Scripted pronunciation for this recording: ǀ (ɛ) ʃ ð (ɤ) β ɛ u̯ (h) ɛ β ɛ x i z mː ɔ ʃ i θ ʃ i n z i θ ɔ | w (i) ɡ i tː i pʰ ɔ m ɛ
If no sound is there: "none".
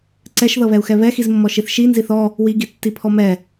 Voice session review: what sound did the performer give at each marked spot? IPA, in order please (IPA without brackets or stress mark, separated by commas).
ɛ, ɤ, x, i